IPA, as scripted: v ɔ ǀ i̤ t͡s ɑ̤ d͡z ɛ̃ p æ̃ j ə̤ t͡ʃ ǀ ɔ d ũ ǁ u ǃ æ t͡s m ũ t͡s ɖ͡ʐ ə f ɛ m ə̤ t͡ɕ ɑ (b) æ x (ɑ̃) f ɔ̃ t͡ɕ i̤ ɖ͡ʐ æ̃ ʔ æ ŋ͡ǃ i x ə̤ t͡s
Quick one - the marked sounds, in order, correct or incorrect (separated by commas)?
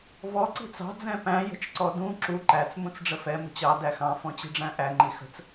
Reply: incorrect, correct